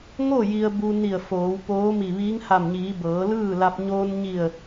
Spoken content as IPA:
ŋ o˥˨ j i˧ ə̯ b u˧ n i˧˩ ə̯ f oː˩˧ w p oː˧˥ m i˧˩ ʋ iː˧˥ ŋ h a˧˩ m ɲ iː˩˧ b ɤː˩˧ l ɯː˥˨ l a˧ p̚ ɲ oː˧ n ɲ i˧˩ ə̯

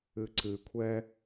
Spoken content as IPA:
ɨ ǀ ɨ kʷʰ ɛ

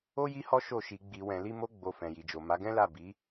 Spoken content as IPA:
o˦ j i˦ h ɔ˦ ʃ o˦˨ ʃ i˧ ɡ͡b i˨ w ɛ̃˨ l i˧ m o˧ ɡ͡b o˨ f ɛ̃˨ j i˨ d͡ʒ o˨ m a˨˦ ɡ ɛ̃˦ l a˦˨ b i˨˦

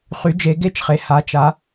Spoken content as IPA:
χ y˩˧ d͡ʒ e˩˧ ɡ e˧ t͡ʃ χ e˩˧ h a˩˧ t͡ʃ a˩˧

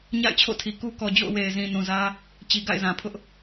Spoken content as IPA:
ɲ a̰˦˨ ɪ̯ t͡ɕʰ o̰˦˨ tʰ i˨ k u˦ k ɔ˨ d͡ʑ o̰˦˨ ʊ̯ w e˨ ɪ̯ z ĩ˨ n ũ˨ z ä˦ | t͡ɕ i˨ ɡ a̰˦˨ ɪ̯ z ã˨ pʰ ʊ˦ ʔ

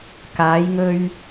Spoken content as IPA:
k aː˨˧ j ŋ ɵ˧ ɥ

